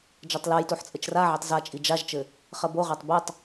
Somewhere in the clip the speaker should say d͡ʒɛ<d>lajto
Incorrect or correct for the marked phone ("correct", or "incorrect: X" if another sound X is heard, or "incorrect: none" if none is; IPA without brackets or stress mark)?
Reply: incorrect: tˤ